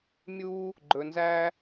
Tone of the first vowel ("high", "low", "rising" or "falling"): high